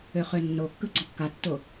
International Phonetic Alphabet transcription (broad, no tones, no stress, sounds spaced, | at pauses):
ø χ ø nː o kː ɯ ɡ͡ǀ ɔ kː a tː o